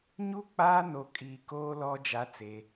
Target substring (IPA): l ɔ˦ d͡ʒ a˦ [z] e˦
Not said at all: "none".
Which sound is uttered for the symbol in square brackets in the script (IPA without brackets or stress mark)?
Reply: t͡s